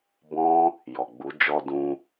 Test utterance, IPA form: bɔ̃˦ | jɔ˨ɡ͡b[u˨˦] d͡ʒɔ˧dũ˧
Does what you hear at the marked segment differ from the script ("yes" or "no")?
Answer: no